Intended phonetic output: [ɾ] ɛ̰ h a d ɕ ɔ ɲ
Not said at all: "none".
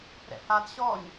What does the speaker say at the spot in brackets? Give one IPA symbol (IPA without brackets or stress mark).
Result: ɾ